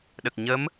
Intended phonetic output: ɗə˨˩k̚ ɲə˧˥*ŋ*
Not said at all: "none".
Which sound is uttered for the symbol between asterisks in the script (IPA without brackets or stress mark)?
m